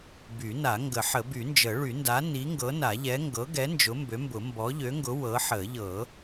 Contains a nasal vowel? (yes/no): no